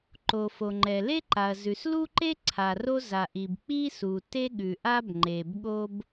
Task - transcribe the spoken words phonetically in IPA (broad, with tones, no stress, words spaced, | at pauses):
ǃo˩fo˩ŋ͡ǃɛ˩ le˥ǃa˩ɐ̯zʉ˩s lu˥ǃe˥ ǀʰa˩ro˥za˩ʔi˩b k͡pi˥su˩ te˥ɠʉ˩ʔa˥b ŋ͡ǃe˩bɠo˥b